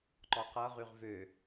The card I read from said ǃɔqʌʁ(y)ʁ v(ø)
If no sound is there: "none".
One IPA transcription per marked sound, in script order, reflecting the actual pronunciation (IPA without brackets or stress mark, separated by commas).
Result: y, ø